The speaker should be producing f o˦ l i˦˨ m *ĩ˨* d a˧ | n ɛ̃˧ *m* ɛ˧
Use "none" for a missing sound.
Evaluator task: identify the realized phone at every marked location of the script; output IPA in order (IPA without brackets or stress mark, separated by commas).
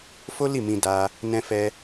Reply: ĩ˧, f